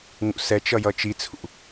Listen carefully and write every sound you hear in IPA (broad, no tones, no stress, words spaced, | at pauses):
ŋṵsɛt͡ʃʌ jʌt͡ʃit͡sʰṵ